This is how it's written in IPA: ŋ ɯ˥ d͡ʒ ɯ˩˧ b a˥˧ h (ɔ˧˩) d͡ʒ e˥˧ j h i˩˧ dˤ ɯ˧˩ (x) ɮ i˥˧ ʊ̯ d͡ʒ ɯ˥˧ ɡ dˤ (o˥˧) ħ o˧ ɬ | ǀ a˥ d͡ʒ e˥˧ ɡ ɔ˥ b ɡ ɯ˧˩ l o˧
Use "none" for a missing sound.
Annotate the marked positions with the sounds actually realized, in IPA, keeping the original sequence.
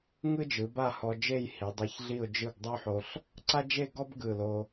ɔ˧, ç, o˥

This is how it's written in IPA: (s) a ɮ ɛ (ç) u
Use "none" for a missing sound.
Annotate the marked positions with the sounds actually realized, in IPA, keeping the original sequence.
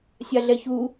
sʲ, ç

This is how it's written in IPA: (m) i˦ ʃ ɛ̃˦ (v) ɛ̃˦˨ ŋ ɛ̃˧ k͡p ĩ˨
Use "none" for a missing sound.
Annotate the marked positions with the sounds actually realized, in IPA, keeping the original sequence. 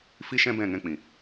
f, b

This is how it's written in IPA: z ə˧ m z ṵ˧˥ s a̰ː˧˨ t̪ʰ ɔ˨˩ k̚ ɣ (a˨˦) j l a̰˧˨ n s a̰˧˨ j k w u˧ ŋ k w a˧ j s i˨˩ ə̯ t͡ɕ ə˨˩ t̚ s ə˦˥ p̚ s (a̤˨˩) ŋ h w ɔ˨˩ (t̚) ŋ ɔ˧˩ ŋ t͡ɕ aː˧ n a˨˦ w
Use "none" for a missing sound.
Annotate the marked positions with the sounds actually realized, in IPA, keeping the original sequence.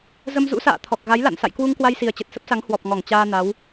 a˨˦, a˨˦, p̚

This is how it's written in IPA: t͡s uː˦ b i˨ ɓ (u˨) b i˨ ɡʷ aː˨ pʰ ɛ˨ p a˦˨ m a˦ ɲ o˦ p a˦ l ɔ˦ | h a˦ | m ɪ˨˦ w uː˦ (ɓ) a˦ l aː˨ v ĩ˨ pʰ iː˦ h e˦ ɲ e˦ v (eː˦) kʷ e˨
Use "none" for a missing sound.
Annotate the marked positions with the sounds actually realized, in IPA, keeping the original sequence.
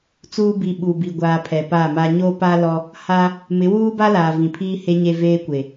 u˨, b, eː˦

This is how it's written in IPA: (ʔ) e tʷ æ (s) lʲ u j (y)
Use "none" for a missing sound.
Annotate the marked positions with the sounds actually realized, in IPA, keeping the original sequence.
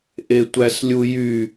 ʔ, s, y

